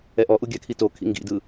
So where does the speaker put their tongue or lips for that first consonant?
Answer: throat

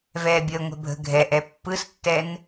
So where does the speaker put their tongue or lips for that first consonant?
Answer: lips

